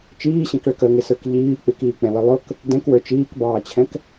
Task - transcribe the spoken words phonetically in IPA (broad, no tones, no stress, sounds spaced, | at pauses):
t͡ʃ iː ɕ ɛ̃ k ɭ ə k ə ŋ ɪ s ə˞ k ʎ iː k͡p ɪ k iː k͡p ɛ̃ w ə lˠ ʊ k | d ɛ̃ k w ə˞ t͡ʃ iː k b ɑː t͡ɕʰ ɛ̃ k